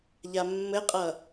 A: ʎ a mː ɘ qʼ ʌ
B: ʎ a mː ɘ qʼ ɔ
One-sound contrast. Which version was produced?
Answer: A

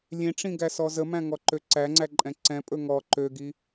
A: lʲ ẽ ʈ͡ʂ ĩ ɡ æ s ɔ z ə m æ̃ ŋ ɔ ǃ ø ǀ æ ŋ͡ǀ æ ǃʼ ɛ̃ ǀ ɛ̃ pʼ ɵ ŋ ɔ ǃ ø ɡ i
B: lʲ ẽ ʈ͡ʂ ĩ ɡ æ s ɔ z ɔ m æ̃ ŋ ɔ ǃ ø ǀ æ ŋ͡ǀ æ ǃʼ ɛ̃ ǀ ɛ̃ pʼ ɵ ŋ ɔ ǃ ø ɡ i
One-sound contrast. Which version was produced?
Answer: A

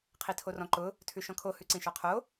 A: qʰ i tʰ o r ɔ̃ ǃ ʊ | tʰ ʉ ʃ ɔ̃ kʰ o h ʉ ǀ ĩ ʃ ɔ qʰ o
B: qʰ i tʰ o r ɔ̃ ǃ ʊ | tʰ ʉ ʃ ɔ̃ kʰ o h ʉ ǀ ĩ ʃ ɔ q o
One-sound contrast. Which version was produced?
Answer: A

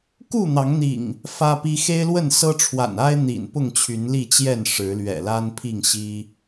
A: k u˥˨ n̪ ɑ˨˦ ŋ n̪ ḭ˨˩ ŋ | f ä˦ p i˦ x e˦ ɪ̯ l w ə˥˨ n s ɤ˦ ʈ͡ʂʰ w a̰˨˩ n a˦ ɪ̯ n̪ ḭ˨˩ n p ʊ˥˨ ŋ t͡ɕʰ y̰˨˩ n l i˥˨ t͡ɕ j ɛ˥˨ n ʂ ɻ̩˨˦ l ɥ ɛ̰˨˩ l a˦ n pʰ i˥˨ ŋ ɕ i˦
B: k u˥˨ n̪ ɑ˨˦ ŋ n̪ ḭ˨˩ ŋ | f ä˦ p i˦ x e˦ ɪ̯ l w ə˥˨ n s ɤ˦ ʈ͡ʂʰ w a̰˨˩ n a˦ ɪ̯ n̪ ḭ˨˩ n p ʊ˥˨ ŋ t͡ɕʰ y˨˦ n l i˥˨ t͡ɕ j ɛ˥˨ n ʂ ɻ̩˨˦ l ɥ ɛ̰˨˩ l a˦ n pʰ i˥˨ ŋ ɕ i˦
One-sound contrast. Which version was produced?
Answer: B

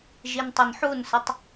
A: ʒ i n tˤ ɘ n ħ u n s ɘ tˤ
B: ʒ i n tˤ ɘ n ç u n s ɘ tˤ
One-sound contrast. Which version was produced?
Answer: A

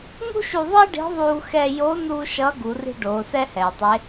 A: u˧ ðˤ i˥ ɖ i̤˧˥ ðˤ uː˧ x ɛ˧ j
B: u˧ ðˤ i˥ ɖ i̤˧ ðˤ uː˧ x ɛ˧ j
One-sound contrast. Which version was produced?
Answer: A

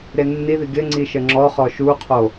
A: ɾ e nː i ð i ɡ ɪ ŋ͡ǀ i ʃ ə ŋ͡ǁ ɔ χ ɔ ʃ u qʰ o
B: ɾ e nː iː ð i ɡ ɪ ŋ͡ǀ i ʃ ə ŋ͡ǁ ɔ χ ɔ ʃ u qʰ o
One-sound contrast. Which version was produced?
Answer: A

